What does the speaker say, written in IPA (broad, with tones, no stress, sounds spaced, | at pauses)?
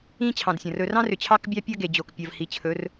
ĩ˦ t͡ɕʰ ɑ̃˨ d sʲ ɐ̃˨ r ɵ˨ r ɑ̃˦ r ʏ˨ t͡ɕʰ ɑ˦ k bʲ ɑ˦ pʲ ɐ˦ ɡ e˨ d͡ʑ o˨ k pʲ ɐ˨ v h i˨ t͡ɕʰ ɵ˨˦ r